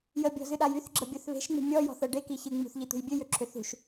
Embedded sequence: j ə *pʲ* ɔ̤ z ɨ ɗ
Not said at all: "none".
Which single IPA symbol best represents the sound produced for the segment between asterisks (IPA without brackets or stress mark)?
bʲ